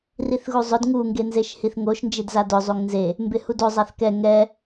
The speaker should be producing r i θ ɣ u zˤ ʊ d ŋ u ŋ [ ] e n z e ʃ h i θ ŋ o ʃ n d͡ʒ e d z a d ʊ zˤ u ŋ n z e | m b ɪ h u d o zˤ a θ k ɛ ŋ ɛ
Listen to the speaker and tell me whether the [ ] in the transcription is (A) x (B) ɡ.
B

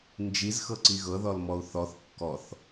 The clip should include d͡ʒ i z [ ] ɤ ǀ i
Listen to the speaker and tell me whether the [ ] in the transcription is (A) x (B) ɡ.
A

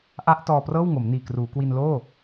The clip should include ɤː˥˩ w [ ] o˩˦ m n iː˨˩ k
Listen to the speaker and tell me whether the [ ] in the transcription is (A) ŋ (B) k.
A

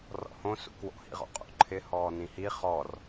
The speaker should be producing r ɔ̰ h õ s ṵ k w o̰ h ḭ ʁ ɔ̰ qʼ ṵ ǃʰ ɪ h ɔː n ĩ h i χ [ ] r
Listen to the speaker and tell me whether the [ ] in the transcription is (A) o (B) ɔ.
B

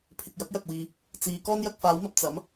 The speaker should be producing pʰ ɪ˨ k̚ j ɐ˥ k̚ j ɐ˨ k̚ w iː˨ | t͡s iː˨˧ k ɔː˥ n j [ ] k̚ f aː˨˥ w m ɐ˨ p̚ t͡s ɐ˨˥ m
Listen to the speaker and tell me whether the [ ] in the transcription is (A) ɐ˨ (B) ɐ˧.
B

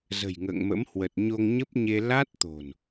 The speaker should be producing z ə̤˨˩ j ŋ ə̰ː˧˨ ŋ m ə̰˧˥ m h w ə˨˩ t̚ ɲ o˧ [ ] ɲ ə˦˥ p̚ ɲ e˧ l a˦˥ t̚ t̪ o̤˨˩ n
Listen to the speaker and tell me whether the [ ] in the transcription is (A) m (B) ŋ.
B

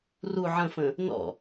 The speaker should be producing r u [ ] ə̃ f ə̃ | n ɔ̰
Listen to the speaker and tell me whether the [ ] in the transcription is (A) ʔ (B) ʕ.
B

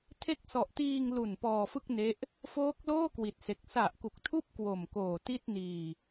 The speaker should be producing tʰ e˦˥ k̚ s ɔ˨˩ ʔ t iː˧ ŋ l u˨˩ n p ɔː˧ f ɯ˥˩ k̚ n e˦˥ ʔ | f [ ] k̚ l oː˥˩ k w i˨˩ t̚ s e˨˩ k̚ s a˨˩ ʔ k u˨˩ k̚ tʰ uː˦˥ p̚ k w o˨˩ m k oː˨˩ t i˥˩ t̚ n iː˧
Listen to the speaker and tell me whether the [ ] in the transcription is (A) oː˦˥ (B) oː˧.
A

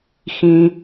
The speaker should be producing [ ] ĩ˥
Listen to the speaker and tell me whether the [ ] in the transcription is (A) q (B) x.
B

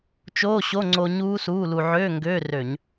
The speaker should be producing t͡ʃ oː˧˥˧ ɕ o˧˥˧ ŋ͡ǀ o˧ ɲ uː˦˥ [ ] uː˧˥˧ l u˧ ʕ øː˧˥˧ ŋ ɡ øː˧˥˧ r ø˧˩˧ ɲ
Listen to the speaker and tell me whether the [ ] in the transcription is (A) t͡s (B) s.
B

